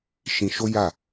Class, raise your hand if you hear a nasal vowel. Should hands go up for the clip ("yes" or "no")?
yes